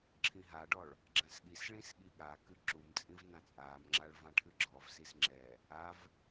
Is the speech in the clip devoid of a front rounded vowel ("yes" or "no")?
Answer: yes